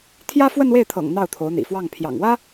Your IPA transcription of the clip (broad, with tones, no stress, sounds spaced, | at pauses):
t̪ʰ j ä˥ f w ə˥˧ n w e˥˩ ɪ̯ t̪ʰ ɤ̰˨˩ ŋ n̪ ɑ˥˩ ʊ̯ t̪ʰ o˧˥ ʊ̯ n̪ ḭ˨˩ f w ɑ˥˩ ŋ pʰ j ɑ̰˨˩ ŋ w ä˥